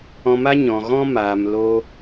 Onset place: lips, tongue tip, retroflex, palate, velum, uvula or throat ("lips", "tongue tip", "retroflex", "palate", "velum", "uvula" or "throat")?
lips